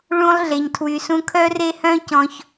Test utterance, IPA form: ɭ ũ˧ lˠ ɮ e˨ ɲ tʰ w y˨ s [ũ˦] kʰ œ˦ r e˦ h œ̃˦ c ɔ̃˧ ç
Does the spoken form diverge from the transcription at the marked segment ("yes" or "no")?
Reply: yes